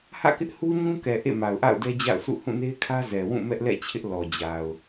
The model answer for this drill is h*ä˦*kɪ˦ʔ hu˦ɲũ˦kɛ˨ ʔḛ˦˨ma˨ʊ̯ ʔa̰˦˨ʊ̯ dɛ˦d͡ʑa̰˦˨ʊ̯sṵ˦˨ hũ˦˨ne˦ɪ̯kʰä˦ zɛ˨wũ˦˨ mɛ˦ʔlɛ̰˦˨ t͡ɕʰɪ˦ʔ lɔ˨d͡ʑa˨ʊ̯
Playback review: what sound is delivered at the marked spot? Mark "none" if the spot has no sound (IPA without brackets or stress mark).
ä̰˦˨